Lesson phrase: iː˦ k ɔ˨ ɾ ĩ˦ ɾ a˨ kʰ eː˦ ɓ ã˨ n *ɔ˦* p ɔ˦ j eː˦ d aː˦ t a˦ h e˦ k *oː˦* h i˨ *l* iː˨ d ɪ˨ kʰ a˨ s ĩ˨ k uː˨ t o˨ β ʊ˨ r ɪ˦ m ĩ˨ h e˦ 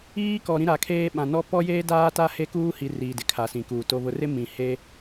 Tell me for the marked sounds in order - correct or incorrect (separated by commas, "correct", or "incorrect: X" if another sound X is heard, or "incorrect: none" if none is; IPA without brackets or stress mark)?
correct, incorrect: uː˦, incorrect: r